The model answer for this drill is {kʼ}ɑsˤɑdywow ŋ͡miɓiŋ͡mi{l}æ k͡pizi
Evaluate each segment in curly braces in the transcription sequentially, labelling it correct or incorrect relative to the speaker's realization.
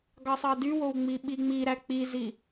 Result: incorrect, incorrect

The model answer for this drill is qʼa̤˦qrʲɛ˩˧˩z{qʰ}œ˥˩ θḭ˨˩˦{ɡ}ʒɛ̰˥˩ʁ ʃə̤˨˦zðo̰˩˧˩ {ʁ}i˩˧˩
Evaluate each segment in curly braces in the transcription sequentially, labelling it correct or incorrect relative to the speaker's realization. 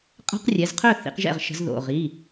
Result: correct, incorrect, correct

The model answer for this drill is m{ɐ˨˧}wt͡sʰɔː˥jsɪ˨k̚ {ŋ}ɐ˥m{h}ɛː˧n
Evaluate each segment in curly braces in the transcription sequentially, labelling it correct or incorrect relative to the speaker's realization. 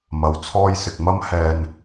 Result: correct, incorrect, correct

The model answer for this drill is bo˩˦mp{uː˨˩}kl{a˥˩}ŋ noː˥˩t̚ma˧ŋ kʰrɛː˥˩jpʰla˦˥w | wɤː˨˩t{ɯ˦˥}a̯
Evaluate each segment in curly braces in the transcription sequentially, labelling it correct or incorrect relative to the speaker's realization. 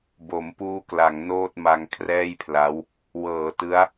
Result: incorrect, incorrect, correct

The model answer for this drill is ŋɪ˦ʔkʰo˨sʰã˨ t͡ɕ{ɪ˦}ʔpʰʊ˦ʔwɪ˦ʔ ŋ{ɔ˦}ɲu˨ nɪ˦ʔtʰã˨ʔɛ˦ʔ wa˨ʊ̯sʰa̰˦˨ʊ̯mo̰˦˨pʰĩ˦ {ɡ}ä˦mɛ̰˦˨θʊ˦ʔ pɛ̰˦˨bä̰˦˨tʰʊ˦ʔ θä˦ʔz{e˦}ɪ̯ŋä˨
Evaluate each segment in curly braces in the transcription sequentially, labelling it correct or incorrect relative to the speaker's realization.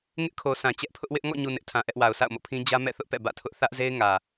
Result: incorrect, incorrect, incorrect, correct

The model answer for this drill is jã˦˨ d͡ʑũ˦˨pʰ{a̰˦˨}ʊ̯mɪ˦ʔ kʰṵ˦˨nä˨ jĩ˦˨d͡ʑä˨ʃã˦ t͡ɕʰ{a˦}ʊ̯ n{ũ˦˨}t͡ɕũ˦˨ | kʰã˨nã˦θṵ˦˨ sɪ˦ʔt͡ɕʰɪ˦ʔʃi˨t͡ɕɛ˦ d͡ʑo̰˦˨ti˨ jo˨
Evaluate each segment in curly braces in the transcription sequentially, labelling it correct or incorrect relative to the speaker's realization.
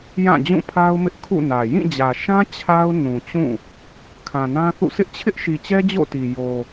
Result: incorrect, correct, incorrect

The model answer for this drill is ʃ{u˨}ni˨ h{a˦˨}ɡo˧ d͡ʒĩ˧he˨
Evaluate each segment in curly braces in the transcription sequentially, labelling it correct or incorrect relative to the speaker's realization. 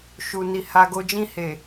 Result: correct, incorrect

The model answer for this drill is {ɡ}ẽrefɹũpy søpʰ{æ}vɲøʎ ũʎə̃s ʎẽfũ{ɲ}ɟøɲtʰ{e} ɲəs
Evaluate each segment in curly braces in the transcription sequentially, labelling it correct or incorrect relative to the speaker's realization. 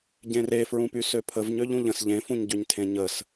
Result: incorrect, incorrect, correct, incorrect

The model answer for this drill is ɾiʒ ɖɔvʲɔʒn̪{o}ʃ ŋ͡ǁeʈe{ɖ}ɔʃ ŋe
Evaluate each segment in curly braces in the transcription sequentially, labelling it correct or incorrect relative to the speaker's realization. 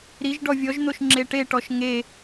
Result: correct, incorrect

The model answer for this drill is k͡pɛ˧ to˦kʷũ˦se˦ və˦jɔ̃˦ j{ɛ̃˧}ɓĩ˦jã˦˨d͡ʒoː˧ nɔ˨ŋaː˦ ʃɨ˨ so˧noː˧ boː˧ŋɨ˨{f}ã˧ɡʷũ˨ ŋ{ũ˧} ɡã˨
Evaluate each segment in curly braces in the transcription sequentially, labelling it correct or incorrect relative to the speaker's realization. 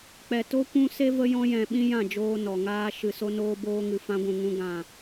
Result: correct, correct, correct

